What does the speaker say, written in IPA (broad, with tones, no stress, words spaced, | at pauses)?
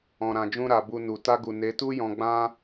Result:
ɔ̃˨ ɾã˨d͡ʒũ˧ɾa˨ bu˧nu˨ ta˧ɡu˨ ne˨˦ tu˦jɔ̃˧ɡ͡bã˦